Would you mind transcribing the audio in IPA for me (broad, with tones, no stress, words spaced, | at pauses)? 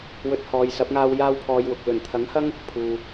wɵ˧t̚hɔː˨jsɐ˨˥p̚ŋaː˧w jaː˥wpʰɔː˧jwʊ˨k̚ lɵ˨˩nt̪ʰɐ˨˥ŋhɐ˥ŋ | pʰuː˨